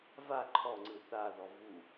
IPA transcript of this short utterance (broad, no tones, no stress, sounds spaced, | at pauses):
v a ǃʰ ɔ ŋ͡ǀ ɯ θ a ð ɔ v u